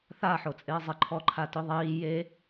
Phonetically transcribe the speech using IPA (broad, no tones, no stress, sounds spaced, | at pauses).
θ a ħ o t͡sʼ ɪː zˤ ɪ ǃʰ ɔ ǃʰ a t ʊ ðˤ iː j e